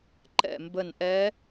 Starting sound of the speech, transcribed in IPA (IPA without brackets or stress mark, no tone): ǃ